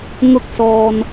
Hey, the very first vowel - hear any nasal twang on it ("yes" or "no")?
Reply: no